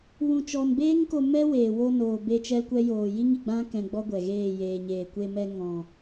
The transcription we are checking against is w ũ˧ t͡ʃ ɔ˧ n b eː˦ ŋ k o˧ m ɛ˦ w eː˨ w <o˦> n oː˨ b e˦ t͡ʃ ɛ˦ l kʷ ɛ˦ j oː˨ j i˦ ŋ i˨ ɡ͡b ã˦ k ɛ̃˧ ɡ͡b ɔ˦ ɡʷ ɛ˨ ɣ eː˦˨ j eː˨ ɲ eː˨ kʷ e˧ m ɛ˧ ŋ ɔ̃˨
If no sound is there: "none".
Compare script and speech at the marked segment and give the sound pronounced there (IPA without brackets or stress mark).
o˧